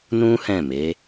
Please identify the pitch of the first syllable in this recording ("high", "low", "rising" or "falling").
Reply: high